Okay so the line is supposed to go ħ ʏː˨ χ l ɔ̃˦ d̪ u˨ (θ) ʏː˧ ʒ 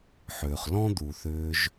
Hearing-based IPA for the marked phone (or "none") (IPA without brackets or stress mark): θ